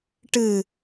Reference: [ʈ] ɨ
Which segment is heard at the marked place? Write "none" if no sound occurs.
ʈ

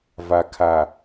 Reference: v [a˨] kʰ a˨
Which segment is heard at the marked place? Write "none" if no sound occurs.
a˨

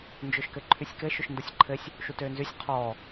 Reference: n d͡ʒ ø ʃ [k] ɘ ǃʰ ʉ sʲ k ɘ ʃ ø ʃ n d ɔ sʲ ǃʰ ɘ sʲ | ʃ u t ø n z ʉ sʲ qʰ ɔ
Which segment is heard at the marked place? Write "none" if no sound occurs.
k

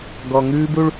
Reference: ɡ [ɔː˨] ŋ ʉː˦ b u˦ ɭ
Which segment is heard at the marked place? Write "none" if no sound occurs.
ɔ˨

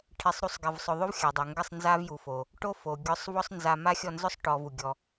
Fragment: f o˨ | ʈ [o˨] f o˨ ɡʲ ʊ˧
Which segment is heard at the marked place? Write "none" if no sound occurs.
o˦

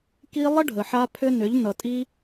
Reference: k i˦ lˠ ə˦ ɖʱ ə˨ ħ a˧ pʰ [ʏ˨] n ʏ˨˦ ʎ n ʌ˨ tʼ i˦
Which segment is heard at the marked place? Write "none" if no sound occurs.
ʏ˦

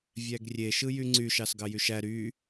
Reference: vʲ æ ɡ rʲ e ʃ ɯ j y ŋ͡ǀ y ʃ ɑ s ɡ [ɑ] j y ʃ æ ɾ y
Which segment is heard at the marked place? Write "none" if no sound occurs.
ɑ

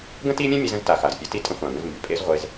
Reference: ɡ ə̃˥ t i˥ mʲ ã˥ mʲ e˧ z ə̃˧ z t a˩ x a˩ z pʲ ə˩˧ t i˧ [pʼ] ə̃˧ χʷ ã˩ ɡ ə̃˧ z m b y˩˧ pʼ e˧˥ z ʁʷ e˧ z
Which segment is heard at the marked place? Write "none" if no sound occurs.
tʼ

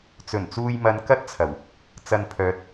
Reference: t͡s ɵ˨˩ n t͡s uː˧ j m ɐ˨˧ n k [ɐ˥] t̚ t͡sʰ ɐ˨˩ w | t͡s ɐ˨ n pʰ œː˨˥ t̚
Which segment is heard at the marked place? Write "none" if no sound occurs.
ɐ˥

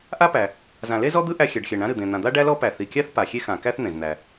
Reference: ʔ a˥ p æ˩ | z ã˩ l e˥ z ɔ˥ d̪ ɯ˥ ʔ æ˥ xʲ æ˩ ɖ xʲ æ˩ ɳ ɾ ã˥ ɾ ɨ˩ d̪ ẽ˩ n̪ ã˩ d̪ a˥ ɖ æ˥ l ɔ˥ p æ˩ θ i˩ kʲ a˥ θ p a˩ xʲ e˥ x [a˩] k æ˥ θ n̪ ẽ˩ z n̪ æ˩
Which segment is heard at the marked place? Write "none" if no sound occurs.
ã˩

